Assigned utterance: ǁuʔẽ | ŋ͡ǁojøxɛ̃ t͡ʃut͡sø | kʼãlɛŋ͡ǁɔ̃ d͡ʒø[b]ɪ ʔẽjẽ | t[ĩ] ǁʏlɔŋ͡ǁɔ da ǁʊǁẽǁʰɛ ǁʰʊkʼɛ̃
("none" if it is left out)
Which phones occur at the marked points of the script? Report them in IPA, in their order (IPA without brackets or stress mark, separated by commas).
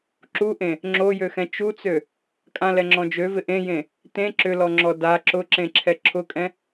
v, ẽ